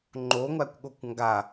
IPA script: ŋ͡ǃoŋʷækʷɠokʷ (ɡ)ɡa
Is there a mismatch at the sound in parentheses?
yes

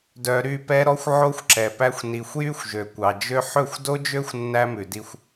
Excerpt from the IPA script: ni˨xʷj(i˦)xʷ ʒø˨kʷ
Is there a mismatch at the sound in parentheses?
yes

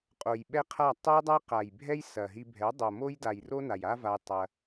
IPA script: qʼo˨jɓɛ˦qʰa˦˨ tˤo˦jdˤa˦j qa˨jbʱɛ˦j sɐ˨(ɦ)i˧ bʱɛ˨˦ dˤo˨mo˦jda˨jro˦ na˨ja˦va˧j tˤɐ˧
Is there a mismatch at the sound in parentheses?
no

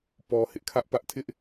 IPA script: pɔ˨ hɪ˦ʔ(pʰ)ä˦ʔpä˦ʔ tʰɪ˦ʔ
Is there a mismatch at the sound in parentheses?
yes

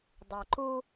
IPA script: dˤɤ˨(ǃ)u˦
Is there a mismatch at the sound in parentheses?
no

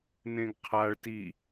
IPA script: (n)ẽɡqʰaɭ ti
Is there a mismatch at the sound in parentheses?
no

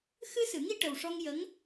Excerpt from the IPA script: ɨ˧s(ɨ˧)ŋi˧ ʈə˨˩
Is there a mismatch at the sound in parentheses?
yes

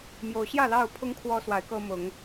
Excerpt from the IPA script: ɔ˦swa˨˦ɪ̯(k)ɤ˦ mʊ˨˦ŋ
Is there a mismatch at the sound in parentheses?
no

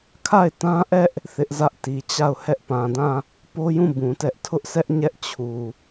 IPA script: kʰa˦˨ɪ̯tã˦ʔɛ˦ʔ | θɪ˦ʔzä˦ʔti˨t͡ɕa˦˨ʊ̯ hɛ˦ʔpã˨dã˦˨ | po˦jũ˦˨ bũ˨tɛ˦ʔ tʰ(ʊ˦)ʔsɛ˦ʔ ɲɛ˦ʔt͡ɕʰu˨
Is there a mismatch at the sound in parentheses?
no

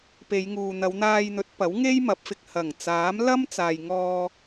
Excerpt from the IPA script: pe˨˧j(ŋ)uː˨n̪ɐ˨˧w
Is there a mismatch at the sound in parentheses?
no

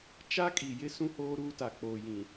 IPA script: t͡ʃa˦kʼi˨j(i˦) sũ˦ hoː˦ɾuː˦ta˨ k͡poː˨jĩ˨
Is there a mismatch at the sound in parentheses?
yes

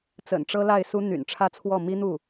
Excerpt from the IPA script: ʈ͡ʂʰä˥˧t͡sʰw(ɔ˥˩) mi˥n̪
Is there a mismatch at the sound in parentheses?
no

